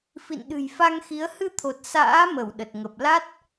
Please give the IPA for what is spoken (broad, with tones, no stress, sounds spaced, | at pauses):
f ḭ˧˨ n ɗ ɨ̤˨˩ j f a˧ ŋ x i˨˦ ə̯ h ɨ˧ t̪ʰ o˨˩ t̚ s a̰ː˧˥ m ə˧˩ w ɗ ə˨˩ t̚ ŋ ə˨˩ p̚ l a˦˥ t̚